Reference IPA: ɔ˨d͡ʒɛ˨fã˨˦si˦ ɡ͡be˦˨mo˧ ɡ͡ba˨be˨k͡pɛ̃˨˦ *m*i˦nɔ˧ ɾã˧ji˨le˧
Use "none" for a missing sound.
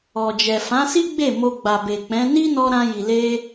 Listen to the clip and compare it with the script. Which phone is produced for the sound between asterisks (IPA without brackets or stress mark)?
n